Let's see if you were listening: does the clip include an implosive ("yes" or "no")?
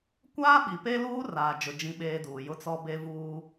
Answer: yes